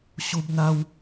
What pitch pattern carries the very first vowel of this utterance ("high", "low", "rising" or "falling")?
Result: high